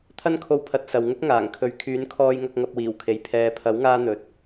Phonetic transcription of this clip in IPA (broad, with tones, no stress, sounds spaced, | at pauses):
t̪ʰ ɐ˥ n kʰ o˧ w pʰ ɐ˨˥ t̚ s ɐ˨ w ŋ ʊ˥ k̚ ŋ aː˨˩ ŋ kʰ ɵ˨˥ ɥ kʰ yː˨˥ n kʰ ɔː˧ j ŋ ɐ˧ k̚ ŋ ɐ˧ p̚ w iː˨˩ w kʰ e˨˥ j pʰ ɛː˨ pʰ ɐ˨˥ w ŋ aː˧ n̪ ɵ˨ t̚